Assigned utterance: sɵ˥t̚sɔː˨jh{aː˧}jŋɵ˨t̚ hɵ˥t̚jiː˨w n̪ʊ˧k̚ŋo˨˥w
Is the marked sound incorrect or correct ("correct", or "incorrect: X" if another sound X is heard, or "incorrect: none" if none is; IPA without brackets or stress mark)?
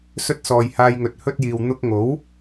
correct